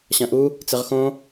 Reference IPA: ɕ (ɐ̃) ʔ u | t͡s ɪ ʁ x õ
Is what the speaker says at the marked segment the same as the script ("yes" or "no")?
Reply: yes